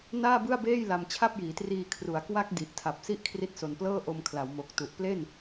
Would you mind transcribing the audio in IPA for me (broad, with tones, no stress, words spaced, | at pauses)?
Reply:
naː˥˩bɯ˥˩a̯beː˥˩j la˧mt͡ɕʰa˥˩p̚jiː˩˦triː˧ kʰru˩˦a̯kwa˦˥k̚ di˨˩ʔtʰa˨˩p̚si˥˩ʔ kʰri˦˥t̚so˨˩nplɤː˥˩ ʔo˧m kʰla˩˦wmo˨˩k̚tu˨˩ʔ ple˥˩n